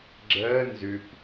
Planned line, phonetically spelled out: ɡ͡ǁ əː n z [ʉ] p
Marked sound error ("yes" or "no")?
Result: no